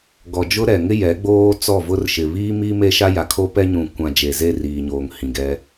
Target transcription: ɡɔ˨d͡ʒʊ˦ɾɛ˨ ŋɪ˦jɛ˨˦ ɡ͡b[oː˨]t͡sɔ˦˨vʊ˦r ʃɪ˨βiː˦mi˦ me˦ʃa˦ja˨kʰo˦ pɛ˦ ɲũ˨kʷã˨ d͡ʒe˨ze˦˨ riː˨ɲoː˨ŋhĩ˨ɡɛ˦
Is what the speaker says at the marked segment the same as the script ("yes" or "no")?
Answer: no